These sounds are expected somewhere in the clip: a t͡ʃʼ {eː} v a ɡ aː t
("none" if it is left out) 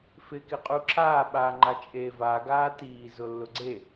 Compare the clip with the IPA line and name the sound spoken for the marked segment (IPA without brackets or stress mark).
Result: eː